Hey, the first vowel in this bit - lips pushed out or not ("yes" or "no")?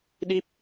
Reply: no